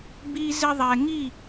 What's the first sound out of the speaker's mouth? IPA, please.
b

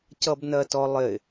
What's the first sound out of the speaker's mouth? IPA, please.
c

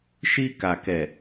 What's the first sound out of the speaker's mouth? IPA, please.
ʃ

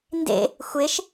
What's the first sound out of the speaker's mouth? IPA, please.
n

